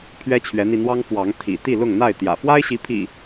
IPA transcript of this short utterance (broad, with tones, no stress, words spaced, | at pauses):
pʰɥɛ˦t͡ɕʰɥɛ˨˦n̪i˧n̪wɑ˦ŋ fwɑ˨˦ŋ t̪ʰḭ˨˩ t̪i˥˨lʊ˥˨ŋn̪a˥˨ɪ̯ t̪jä̰˨˩ fwa˦ɪ̯ɕi˨˦ pʰḭ˨˩